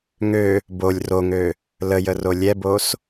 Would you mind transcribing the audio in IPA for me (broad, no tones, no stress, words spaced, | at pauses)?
ŋø | bolʲ roŋø | ləjə rolʲɛbos